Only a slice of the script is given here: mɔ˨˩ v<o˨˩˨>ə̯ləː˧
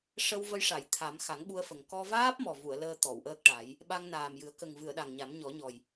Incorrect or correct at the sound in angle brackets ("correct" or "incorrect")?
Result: incorrect